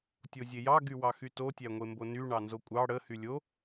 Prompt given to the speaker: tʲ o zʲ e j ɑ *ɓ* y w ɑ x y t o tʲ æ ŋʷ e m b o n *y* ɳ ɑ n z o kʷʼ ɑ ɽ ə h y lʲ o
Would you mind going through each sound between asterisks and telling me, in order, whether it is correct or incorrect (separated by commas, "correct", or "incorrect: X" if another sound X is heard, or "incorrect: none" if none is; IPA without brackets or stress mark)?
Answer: incorrect: ɡ, correct